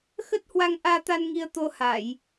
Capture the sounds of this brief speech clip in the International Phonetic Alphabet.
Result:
x ə˦˥ t̚ h w a˧ ŋ ʔ aː˧ t̪ a˧ n ŋ i˧ ə̯ t̪ o˧ h a˧˩˨ j

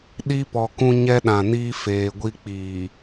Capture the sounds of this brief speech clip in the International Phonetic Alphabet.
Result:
ɗ i˦ p ɔ˨ k ũ˦ ɲ ɛ˦ ɗ ã˨ n iː˦ f eː˨ ɡʷ i˦ k͡p iː˨

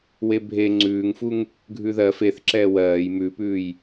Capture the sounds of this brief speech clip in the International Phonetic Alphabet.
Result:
w e bʱ e ŋ͡ǀ ʉː ŋ f u ŋ | ɡʱ ʉ ð ɜ f e θ ǁ ɛː w ɜː j m ʉ p ʉː j

